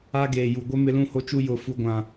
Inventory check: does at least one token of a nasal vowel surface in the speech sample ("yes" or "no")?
yes